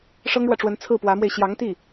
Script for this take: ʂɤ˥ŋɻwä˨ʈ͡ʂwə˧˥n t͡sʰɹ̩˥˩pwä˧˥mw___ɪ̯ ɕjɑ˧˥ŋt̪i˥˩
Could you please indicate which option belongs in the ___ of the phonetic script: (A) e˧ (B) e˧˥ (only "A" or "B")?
A